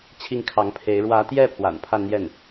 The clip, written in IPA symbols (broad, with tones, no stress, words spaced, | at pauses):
t͡ɕʰi˥˩ŋkʰɑ˧˥ŋpʰe˧˥ɪ̯ ɻwä˧˥t̪jɛ˥˩ pʰwa̰˨˩npʰa˥˧nn̪jɛ˥˩n